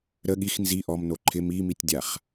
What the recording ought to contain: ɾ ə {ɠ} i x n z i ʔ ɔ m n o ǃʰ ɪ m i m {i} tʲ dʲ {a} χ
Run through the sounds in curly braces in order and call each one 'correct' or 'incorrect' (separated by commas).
correct, correct, correct